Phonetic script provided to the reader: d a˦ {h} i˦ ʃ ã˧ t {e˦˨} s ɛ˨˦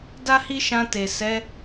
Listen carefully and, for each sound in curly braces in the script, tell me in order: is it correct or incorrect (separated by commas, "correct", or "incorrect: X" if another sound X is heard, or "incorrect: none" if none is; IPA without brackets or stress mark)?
correct, incorrect: e˨